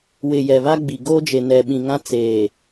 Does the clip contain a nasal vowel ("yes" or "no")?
yes